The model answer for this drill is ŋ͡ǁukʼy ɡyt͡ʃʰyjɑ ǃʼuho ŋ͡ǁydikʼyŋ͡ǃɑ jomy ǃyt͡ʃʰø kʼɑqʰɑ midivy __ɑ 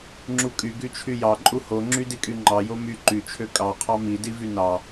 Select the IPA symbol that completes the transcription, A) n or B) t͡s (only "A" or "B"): A